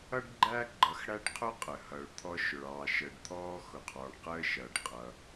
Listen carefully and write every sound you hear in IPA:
ʌ˥ ɖ ɡ͡ǃ æ˥ ɡ͡ǃ ʌ˧ x ɽ æ˥ ɖ qʰ ʊ˥ qʼ ə˩ h ʌ˩ ɭ t̪ʰ ɔ˧ ʃ ʊ˩ ɭ ɑː˩ ʃ əː˩ ɖ t̪ʰ ɔː˧ x ʊ˩ qʰ ɔː˩ ɳ q əː˧ ʃ ʌː˩ ɖ qʼ ʌ˩

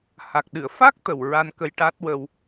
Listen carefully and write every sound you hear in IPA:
h a˨˩ k̚ ɗ ɨ˨˩˨ ə̯ f a˦˥ k̚ t̪ ə˨˩ w ɹ a˧ n k ə˧ j ʈ a˦˥ t̚ w ə˧ w

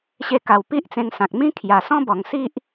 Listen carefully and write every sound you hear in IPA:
ɕ e˧ k a˨˩ w p i˦ ʔ t͡s ẽ˧ ŋ s ã˨ k̚ m ĩ˦ kʰ j a˨˩ s ɔ̃˦ b ɔ˨˩ ŋ s i˦ ʔ

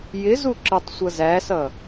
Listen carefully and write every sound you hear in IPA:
j ɪ z u ǁ ə tˤ sʷ ʌ z æ s ʌ

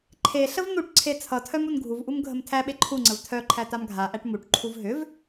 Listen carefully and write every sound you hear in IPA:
ǃʰ e ɬ ə v n̪ u ʈ ǀʰ e t͡sʰ ʌ tʰ œ m u n ɡʱ u v ʔ u m ɡʱ ə m tʰ æ ɓ e ǃʰ u ŋ͡ǀ ə v tʰ œ ǃʰ æ t a m ɡʱ a ʔ æ ʈ m u ʈ ǃʰ u v ɦ ʏ v

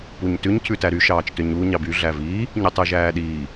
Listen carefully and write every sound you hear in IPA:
p u ɲ t ʉ ɲ cʰ ʉ t æ ɾ y ʃ ɑː t͡ʃ t ø ɲ u ɲ ɑ b y ɮ æ v iː | ɲ y tˤ ʉ ʒ æː ɗ iː

